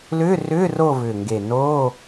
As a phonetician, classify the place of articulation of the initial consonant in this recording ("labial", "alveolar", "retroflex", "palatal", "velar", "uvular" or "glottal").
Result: alveolar